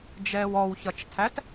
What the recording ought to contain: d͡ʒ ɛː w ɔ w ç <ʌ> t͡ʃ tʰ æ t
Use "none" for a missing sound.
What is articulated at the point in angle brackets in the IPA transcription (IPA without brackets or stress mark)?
ʌ